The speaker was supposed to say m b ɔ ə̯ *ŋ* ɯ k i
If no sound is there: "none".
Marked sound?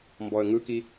ŋ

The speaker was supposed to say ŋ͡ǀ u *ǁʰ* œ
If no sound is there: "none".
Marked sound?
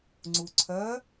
ǀʰ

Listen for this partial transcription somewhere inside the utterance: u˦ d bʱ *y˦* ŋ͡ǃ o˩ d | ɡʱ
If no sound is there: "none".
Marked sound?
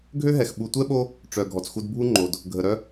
u˦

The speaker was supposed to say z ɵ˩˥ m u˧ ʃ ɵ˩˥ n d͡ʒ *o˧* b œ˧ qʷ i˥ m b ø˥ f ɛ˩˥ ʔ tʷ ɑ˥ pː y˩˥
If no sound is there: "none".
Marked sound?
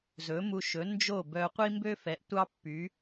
o˥˩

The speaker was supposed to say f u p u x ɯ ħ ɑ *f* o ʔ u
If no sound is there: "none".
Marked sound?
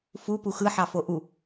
f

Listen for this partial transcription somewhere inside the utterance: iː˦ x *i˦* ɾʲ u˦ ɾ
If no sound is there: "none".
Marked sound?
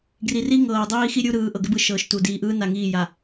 i˦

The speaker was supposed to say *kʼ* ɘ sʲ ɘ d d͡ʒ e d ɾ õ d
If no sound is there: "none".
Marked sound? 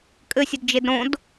kʼ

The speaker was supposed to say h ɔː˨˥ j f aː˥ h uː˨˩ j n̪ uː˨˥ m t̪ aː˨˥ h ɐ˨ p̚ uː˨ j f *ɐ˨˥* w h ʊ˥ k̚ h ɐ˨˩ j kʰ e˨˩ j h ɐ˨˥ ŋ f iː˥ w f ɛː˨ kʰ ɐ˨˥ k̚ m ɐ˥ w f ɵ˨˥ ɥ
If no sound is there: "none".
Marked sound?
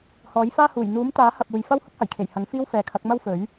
ɐ˥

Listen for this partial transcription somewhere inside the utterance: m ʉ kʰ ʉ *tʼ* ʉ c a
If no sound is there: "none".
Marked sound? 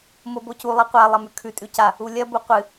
tʼ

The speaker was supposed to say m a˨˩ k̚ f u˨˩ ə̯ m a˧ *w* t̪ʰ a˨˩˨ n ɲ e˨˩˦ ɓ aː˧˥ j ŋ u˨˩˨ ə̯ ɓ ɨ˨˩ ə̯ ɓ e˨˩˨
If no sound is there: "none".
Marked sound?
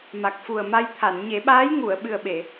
j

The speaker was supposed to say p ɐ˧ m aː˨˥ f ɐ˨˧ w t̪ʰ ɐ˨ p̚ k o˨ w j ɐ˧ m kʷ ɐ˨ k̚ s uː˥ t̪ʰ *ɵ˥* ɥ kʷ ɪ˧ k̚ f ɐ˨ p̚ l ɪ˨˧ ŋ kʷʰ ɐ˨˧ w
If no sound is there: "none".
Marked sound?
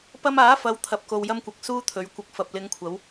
ɵ˨˧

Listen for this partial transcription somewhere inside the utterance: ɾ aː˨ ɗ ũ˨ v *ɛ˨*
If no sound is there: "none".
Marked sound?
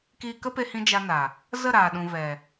ɛ˨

